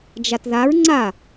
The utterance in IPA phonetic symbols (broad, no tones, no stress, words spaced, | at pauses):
d͡ʒatðaɹ ŋ͡ǀa